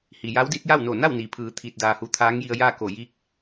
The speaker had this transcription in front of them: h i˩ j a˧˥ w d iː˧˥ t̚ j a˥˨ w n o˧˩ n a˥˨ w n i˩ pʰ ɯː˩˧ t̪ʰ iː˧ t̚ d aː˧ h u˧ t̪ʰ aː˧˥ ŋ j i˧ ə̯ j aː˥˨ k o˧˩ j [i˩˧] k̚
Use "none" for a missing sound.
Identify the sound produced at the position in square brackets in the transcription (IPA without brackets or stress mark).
i˧˥